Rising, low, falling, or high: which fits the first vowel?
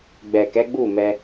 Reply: low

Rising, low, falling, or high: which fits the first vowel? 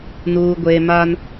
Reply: low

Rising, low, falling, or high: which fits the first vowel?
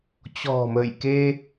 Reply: low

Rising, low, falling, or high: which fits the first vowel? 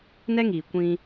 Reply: high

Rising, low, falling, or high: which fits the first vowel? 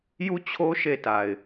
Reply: falling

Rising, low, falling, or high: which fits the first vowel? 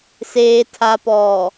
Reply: low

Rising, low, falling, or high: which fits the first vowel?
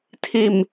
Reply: low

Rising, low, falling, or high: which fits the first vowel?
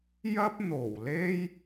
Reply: high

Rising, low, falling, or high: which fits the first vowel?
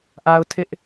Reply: high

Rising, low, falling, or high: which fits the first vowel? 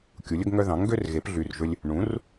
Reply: rising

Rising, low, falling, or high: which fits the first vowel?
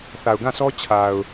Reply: low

